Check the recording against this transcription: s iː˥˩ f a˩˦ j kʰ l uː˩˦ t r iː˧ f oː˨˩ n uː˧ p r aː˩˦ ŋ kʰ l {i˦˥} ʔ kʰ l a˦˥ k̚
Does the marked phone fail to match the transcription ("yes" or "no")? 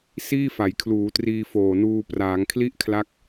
yes